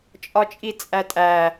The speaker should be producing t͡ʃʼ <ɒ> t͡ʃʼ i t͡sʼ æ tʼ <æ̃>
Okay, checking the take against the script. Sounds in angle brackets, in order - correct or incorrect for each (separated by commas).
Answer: correct, incorrect